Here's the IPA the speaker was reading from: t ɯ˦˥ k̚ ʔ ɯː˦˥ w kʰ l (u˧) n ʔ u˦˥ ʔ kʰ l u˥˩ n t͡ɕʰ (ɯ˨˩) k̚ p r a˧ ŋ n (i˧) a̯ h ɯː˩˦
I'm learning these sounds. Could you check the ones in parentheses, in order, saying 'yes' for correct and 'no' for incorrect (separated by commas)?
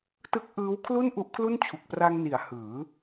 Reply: no, no, no